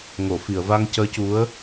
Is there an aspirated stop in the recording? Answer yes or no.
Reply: no